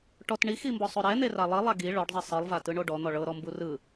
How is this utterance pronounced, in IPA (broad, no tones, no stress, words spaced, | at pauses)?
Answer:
ʈɔt ɳiximbɔsˤo ɾɛn̪era lˠilˠa ɡi ɭɔɖzˤe sˤɯlˠvatɯɳo ɖɔn̪ɔ ɭɤɾɔmbu rɯ